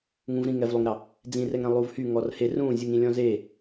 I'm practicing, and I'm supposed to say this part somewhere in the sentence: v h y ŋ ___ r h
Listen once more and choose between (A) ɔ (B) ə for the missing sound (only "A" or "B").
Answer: A